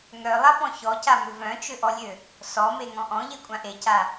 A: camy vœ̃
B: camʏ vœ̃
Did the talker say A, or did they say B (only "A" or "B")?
B